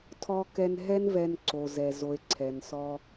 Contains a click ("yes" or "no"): yes